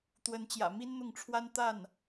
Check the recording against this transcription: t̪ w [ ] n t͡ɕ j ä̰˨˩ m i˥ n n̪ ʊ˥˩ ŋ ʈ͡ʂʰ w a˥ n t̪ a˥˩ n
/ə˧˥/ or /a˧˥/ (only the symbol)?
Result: ə˧˥